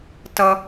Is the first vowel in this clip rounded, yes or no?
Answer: no